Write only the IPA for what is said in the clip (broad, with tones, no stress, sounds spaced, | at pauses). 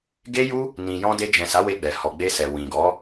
ɡ e˦ j u˦ | n ĩ˨ j ɔ̃˧ d e˧ d͡ʒ ɛ̃˨ s a˨˦ w e˧ ɡ͡b ɛ˨ h ɔ˨ ɡ͡b e˧ s ɛ˨ w ĩ˨ ɡ ɔ˨˦